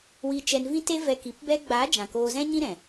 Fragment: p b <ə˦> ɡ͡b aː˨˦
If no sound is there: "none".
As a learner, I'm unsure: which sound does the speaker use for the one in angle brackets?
ɛ˦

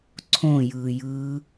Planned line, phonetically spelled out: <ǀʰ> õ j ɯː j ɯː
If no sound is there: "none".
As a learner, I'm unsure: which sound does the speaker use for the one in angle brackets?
ǀʰ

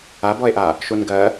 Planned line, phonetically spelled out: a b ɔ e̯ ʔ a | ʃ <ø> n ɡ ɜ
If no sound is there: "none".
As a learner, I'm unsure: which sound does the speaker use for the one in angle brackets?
u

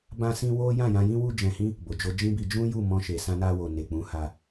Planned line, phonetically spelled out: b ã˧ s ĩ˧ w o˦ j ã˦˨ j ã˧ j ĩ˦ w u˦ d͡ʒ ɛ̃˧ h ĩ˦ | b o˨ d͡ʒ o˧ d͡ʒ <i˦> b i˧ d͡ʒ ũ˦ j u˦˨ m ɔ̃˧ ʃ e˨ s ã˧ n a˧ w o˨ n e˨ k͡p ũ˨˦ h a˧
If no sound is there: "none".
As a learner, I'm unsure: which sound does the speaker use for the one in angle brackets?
ĩ˦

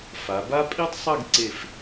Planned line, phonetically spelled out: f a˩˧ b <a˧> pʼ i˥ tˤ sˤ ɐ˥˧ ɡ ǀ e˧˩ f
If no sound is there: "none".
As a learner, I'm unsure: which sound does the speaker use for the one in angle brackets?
a˥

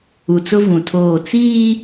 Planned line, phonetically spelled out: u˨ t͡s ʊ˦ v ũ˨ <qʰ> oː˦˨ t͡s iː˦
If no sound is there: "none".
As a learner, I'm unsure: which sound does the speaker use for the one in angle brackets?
tʰ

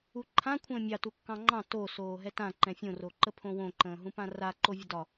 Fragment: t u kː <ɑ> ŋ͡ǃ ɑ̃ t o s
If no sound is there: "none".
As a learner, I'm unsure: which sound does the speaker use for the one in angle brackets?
ɑ̃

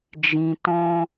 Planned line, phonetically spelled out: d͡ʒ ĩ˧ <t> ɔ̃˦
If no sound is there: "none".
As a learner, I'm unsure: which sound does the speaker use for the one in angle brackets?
t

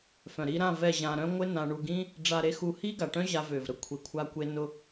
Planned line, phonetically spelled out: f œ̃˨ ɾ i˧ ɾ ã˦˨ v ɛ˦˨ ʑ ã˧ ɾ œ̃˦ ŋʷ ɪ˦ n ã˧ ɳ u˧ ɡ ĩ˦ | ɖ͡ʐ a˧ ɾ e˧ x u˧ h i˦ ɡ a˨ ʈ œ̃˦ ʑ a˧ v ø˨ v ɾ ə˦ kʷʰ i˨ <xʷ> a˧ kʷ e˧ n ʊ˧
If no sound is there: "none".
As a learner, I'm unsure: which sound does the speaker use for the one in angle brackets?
kʷʰ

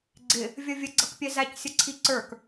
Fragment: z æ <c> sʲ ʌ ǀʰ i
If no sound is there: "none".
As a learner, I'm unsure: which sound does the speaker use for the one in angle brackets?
c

